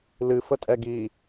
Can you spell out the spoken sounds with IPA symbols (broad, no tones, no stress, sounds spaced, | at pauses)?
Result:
l ɨ f ə tʼ ɛ ɡ i